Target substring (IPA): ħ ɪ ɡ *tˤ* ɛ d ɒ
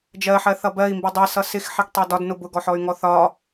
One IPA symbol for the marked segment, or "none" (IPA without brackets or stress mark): tˤ